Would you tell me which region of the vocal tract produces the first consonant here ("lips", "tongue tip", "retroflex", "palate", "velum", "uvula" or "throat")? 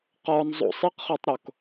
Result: uvula